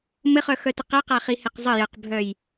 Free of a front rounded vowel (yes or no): no